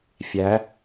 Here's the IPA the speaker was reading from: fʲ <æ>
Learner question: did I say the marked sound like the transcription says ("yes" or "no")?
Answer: yes